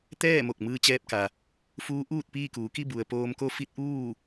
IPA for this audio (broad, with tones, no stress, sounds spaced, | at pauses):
t̪ ɛː˥˨ m o˧˩ k̚ m ɯː˧ t͡ɕ ɛː˧ p̚ k a˩ | f uː˧˥ ʔ uː˥˨ t̚ p iː˥˨ k uː˩˧ k i˥˨ b u˩ ə̯ p oː˧ m k o˧˥ f i˧˥ t̚ ʔ uː˥˨